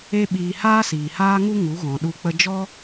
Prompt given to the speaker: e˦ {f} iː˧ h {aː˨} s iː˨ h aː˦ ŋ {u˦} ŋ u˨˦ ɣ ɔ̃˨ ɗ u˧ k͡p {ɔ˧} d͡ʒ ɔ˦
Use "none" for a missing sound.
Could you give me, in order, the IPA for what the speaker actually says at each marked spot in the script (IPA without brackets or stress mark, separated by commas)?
ɓ, aː˦, u˦, ə˧